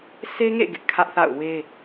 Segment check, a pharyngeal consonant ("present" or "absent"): absent